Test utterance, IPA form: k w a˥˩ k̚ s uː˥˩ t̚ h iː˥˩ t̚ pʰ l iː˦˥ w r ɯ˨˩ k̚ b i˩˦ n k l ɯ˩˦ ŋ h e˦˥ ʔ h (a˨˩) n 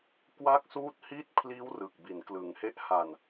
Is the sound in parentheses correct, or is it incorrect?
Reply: correct